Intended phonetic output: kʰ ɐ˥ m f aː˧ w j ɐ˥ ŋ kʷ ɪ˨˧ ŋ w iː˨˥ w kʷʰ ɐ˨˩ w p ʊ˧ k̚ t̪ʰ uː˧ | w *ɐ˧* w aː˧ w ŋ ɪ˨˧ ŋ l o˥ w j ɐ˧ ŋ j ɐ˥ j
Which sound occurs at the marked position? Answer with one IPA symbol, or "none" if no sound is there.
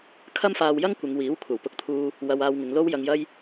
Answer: ɐ˧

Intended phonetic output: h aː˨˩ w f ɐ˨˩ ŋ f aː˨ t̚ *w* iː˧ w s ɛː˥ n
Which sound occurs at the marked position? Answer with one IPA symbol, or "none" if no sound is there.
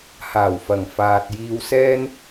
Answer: j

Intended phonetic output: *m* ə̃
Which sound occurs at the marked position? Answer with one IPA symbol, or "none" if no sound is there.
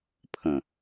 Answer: pʰ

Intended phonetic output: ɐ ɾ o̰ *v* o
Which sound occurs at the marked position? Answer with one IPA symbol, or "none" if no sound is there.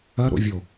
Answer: vʲ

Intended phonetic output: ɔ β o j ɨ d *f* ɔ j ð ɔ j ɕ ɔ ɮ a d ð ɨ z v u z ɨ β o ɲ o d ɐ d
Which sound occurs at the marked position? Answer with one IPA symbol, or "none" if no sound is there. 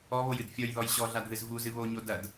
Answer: fʲ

